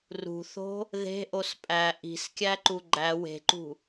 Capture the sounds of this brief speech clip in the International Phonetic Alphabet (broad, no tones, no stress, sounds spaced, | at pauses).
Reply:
r ṳ θ o̤ | ð e̤ ʔ o s pʼ æ ʔ i̤ s kʲ æ ǃ u ɡ͡ǃ æ w e̤ ǃ ṳ